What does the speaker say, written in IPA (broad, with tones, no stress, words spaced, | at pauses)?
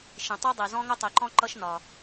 ʃĩ˩ tˤu˥dˤi˩zɔ̃˥ ŋʊ˥tˤi˩ǃɔ̃˥ ǃʌ˥ʃnɒ˩